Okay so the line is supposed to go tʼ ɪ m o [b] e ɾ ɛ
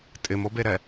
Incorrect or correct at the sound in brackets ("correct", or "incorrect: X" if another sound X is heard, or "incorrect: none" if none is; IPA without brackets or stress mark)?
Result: correct